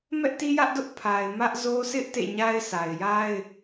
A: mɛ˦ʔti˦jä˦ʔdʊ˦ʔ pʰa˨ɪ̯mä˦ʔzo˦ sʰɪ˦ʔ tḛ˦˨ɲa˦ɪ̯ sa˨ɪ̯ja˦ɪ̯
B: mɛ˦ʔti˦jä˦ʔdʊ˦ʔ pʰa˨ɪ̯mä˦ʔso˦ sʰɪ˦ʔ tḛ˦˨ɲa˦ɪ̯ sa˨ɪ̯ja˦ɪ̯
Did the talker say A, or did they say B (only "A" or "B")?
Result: A